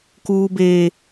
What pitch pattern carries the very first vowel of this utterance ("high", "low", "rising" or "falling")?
high